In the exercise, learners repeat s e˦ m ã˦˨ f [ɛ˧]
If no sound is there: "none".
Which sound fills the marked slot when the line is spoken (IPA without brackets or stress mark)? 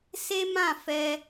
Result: ɛ˧